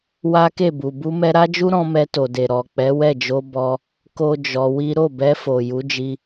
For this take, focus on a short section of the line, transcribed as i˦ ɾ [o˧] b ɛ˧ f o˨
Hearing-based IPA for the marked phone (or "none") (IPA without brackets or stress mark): o˦˨